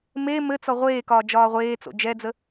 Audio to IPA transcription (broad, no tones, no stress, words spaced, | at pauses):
me mɘt͡sɔ ʁʷeːkɒː d͡ʒɒːʁʷeːt͡so̰ d͡ʒɛd͡zə